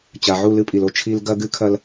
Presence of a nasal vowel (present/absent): absent